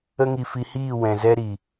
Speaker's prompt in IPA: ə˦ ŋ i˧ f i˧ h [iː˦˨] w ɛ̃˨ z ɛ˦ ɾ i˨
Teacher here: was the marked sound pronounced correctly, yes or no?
yes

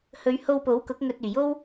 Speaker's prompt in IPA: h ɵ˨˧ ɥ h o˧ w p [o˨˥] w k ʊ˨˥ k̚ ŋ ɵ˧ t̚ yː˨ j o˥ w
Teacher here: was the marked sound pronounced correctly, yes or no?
yes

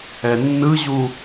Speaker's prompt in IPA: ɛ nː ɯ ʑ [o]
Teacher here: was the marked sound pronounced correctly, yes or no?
no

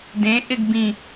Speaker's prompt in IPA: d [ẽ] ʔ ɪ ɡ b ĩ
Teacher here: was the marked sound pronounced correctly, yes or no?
yes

